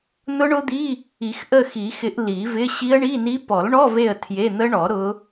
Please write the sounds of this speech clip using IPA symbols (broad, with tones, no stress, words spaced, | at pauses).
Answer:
nʊ˦˥ɳʊ˦˥d̪i˧˥˧ | i˨˩˦x ʔə˦˨xi˨˩˦xɪ˨˦ʔ li˨˩˦vɪ˧˥˧ ɕi˦˥ə̯ɳi˧˥˧ni˦˥ pɔ˨˩˦lɳɔ˧˥˧ve˦˨ə̯ tʰje˧˥˧ n̪ə˦˥ɳɔ˨˩˦ɾʊ˨˦